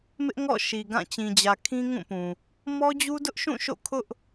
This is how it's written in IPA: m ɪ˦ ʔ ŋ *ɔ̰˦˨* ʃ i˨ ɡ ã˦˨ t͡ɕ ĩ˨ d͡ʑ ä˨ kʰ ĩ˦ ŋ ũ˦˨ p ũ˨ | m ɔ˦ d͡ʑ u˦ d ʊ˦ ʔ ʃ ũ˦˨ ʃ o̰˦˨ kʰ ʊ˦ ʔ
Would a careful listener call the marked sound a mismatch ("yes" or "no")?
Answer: no